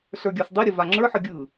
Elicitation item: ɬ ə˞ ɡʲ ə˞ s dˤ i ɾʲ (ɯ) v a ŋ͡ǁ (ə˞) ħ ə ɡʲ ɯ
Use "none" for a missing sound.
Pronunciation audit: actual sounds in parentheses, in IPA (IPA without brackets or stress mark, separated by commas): ə, ə˞